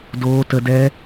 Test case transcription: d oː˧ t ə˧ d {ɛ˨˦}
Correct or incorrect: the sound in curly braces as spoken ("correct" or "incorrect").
incorrect